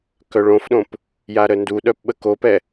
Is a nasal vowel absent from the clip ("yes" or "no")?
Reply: no